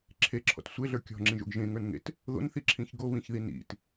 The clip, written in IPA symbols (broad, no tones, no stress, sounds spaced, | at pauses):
ǁʰ e ǁʰ ɔ̰ t sʷ e ɮ ə˞ kʲ ɔ̤ ŋ͡ǁ ĩ ʒ o̰ ɡ ʒ ẽ ŋ ə˞ n ŋ ḛ t | ð o̰ n θ i ǁʰ ĩ ç ɡ o β ĩ ç ð i n ḭ t